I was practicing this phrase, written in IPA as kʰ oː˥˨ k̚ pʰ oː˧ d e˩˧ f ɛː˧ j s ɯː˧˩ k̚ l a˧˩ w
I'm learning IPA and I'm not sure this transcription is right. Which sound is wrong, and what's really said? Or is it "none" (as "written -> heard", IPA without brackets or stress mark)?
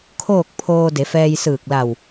none